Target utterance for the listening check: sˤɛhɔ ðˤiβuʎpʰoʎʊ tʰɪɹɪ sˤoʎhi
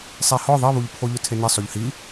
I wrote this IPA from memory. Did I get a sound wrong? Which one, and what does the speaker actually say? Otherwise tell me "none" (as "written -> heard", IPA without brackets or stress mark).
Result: ɹ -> n